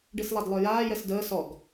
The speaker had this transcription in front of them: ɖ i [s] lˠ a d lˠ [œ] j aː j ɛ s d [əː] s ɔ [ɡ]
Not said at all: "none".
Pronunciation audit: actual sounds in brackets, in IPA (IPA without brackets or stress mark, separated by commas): s, œ, əː, ɡ